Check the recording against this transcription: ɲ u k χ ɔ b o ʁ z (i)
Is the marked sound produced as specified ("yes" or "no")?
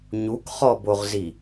yes